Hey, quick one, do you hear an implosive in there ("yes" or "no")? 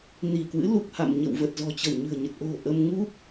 no